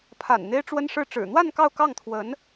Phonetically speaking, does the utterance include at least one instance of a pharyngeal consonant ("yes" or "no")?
no